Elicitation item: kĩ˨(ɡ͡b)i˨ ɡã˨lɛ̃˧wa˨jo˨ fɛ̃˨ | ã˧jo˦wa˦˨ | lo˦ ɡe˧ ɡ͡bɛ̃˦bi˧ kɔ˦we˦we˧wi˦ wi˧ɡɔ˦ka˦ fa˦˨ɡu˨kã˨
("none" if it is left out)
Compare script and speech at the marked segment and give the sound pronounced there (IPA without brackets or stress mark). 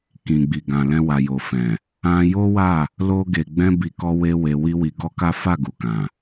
ɡ͡b